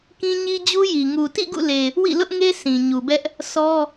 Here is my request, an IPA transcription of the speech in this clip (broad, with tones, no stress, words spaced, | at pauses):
kĩ˦ɲi˦d͡ʑu˦ji˨ ŋu˨tḭ˦˨ ɡṵ˦˨le˨ | wḭ˦˨lʊ˦ʔŋe˦ sĩ˨ɲu˨bɛ˦ʔ | sɔ˦